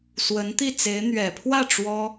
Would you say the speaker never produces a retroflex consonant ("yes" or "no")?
no